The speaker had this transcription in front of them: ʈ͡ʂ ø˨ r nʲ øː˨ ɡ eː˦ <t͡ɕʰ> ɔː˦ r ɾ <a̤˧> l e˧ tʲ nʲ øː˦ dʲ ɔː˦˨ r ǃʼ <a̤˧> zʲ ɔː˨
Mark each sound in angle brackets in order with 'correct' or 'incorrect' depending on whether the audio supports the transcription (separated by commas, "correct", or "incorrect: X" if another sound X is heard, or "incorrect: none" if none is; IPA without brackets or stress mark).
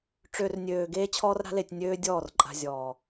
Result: correct, incorrect: a̤˦, correct